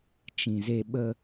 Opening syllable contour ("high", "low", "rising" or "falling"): low